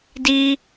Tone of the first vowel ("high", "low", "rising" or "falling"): high